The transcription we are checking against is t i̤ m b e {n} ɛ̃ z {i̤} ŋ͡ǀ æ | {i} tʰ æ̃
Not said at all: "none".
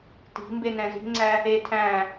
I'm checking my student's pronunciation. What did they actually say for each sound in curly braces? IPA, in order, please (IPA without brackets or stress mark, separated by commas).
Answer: n, i̤, e